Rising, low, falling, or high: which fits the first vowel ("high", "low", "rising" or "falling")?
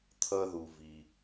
high